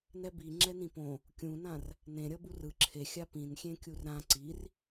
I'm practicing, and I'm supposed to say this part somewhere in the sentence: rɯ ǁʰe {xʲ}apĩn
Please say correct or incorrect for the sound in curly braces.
correct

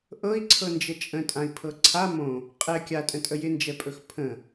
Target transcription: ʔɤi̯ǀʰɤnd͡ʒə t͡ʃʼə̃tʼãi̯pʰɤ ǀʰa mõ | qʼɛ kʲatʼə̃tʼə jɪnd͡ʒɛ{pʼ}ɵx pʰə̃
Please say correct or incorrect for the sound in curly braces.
correct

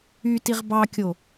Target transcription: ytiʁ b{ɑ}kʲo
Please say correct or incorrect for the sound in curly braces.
correct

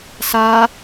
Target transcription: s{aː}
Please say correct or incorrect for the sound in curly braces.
correct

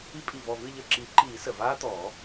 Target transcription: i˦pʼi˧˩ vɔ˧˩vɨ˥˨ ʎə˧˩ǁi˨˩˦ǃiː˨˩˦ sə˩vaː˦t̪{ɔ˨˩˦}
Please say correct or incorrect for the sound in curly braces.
correct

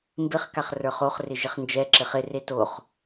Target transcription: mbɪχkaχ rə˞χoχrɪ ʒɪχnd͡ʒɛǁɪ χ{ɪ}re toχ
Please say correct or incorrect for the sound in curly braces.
correct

